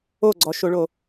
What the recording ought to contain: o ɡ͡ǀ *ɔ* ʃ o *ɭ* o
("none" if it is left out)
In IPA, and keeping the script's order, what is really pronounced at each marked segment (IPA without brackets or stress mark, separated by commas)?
ɔ, ɭ